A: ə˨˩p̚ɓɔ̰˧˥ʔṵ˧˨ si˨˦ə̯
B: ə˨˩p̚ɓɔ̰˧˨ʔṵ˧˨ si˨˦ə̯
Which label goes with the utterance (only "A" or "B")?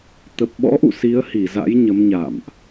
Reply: A